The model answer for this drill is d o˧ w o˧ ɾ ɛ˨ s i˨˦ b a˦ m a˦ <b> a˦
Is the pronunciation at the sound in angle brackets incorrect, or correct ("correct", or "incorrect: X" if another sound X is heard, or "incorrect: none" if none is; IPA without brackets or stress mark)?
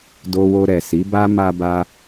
correct